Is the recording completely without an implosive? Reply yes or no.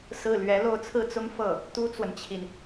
yes